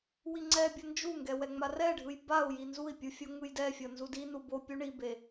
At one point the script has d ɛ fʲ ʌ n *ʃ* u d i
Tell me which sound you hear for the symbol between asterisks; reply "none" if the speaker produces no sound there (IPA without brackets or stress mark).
z